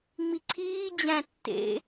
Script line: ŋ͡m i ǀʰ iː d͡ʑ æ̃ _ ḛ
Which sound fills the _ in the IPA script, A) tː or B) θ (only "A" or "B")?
A